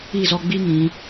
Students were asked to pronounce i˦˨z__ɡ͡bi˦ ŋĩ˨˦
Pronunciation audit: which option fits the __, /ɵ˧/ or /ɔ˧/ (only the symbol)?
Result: ɔ˧